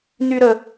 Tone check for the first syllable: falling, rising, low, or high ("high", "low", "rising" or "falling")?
high